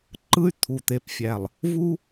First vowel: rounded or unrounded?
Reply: unrounded